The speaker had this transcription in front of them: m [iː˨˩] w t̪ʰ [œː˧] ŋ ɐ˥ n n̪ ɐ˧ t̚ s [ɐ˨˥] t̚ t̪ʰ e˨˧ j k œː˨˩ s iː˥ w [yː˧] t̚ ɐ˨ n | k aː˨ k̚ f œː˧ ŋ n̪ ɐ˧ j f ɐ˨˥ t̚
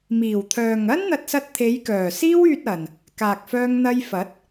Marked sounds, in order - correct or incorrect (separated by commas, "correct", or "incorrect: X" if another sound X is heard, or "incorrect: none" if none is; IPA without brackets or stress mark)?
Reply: correct, incorrect: œː˨, incorrect: ɐ˧, correct